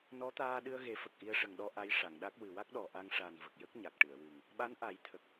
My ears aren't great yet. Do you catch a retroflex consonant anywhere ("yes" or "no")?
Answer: yes